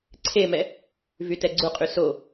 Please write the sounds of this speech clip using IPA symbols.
ǀʰ e m ɛ | v y t ɛ ɡ͡ǀ u qʼ y s o

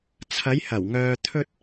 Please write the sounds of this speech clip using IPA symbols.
t͡sʰ ɐ˨˧ j h ɐ˨˩ w ŋ œː˨ t̪ʰ ɵ˧ t̚

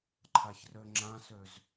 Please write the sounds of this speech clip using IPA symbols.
ǃʰ a ç r ø ŋ͡ǁ ã s ø z

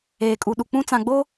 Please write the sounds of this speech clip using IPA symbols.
eː˨ kʼ u˨ ɗ u˨ k͡p ũ˦ t͡s ã˨ ɡ͡b o˦

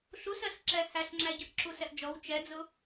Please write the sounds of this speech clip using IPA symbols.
ɬ u s ɜ s ǁ ɛ h æ ɬ ŋ͡ǁ æ ɟ ə ʔ ǁ u s ɛ ʔ d͡ʒ ɔ w t͡ʃ ɛ d͡z ʊ

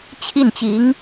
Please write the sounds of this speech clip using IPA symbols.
t͡ɕʰ i˥˩ n t͡ɕ i˧˥ ŋ

